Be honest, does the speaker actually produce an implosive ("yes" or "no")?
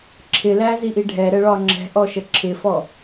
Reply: no